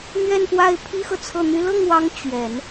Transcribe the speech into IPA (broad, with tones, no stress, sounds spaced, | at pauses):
n̪ ɥ ɛ˥˧ n p w a˥˩ ɪ̯ pʰ i˥ x ɤ˨ t͡sʰ ɤ˥˩ n̪ y˥ l ɤ˥˩ ŋ w ɑ˧˥ ŋ t͡ɕ ɥ ɛ˨˩˦ n